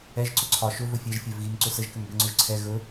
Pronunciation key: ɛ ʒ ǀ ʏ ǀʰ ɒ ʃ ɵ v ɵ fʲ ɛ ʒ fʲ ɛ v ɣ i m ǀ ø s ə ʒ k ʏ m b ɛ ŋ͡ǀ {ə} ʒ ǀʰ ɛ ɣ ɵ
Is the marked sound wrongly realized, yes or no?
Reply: yes